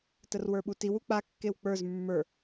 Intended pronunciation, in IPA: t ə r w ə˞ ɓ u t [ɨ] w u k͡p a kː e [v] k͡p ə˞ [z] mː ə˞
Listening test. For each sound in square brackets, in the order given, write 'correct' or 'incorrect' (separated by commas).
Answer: incorrect, incorrect, correct